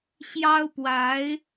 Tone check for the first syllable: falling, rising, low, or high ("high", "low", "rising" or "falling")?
high